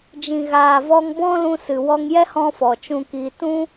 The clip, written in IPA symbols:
d͡ʒ ĩ˨ ɣ aː˨ v ɔ˧ ŋ b ɔ̃˦ l ũ˧ s ɨ˨ w ɔ˧ ŋ j ɛ˦ h ɔ̃˦ f ɔ˨ t͡ʃ ũ˧ k i˧ t ũ˦

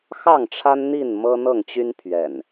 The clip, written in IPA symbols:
x ɑ˥˨ ŋ ʈ͡ʂʰ a˦ n n̪ i˥˨ n m ɤ˦ n̪ ɤ˥˨ ŋ t͡ɕ y˦ n pʰ ɥ ɛ̰˨˩ n

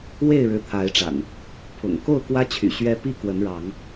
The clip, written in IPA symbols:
w e˥˨ ɪ̯ ɻ ɻ̩˨˦ t̪ʰ a˨˦ ɪ̯ ʈ͡ʂ a̰˨˩ n | pʰ ʊ̰˨˩ ŋ k o˥˨ ʊ̯ k w ä˦ t͡ɕʰ y̰˨˩ ɕ ɥ ɛ˦ p i˥˨ k w ə˨˦ n ɻ ɑ˨˦ ŋ

